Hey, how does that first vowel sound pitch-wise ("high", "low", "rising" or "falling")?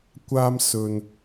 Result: high